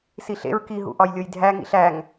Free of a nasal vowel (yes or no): yes